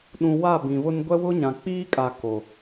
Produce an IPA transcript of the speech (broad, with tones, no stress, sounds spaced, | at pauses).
ɗ ũ˨ w a˦˨ b ĩ˨ β ʊ˦ n ɡʷ ɛ˦ w ʊ˦ ɲ ã˨ k͡p iː˦ kʼ a˨ k o˨